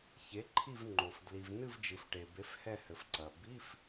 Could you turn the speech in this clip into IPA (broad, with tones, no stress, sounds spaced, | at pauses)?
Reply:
ç e˩˥ ǃʰ i˦˨ v ŋ͡ǃ o˩ f d l i˩ v n ɨ˦˨ v d͡ʒ ɨ˩ f ʈ e˩ b e˩˥ f h ɛ˦˨ h ɘ˩ f ǀ ɐ˩ b i˧˥˧ f